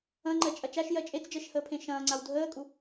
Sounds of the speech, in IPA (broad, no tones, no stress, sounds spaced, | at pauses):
ɐ̃ ŋ͡ǃ ɜ t͡ʃʼ ɐ t͡ʃ a ʃ j ɜ t͡ʃʼ e t͡s d͡ʒ ɜ ʃ h əː pʰ ẽ ʃ ɐ̃ː ŋ͡ǀ a w dʱ əː kʼ u